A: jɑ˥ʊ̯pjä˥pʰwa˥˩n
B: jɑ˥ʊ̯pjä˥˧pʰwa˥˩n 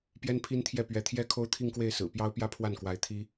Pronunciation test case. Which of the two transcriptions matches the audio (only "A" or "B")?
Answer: A